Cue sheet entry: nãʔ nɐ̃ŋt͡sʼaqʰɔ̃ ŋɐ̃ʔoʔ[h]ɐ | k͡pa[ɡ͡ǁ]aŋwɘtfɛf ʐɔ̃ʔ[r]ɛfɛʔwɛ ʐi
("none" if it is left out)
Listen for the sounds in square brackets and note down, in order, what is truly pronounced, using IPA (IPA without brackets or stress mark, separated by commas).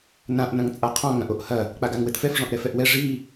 h, ɡ, ɾ